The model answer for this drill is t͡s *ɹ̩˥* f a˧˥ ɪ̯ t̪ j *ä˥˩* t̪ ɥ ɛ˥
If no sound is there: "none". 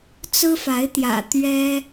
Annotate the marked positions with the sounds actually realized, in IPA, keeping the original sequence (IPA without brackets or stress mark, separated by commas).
ɹ̩˥, ä̰˨˩